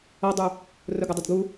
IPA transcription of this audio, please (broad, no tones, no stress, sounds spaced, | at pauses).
ʌ dˤ u | r ʊ ɡ ʌ dˤ ɪ d ɡ u